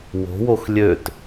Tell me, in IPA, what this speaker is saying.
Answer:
w o̤ w o x lʲ ø t

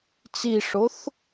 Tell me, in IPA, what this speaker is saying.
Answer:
t͡s i ʂ o θ

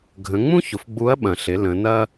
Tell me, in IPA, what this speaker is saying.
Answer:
ɡʱ ə̃˩˧ ŋ͡m ũ˥ ç ʊ˩ f ɡ͡b u˧˥ ɐ̯ ɓ ɐ̃˩ ɬ ɪ˩˧ l ə̃˩˧ n ɐ˥

